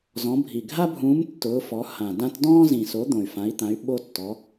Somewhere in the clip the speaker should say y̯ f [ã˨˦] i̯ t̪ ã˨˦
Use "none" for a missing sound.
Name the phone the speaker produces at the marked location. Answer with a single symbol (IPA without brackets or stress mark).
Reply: ã˨˦